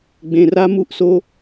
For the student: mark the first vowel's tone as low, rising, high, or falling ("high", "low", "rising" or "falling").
low